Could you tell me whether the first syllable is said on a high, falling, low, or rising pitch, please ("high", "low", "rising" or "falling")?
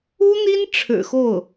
high